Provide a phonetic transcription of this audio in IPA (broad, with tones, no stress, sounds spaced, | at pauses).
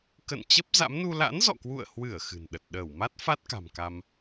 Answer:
k ə̰˧˨ n t͡ɕ ə˦˥ p̚ z a̰˧˥ m n u˧ l a̰˧˥ n z ɔ̰˧˨ k w ṵ˧˨ ə̯ h w ɨ˧˩ ə̯ x ɨ̤˨˩ n ɗ ə˨˩ t̚ ɗ əː˧˩ w m a˦˥ t̚ f a˦˥ t̚ k a̤˨˩ m k a˧ m